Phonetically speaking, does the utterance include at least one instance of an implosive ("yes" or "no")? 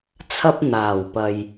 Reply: no